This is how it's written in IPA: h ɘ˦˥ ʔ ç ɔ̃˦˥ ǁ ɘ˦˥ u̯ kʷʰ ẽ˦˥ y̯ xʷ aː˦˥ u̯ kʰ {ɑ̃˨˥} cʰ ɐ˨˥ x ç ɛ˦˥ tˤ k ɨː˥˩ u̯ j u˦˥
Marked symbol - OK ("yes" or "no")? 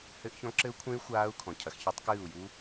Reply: no